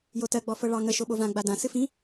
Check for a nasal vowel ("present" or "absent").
present